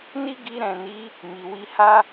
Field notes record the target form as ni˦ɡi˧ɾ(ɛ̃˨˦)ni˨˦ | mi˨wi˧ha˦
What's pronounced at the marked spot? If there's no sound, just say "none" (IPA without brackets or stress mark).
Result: ɛ̃˨